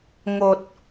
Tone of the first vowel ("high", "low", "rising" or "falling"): low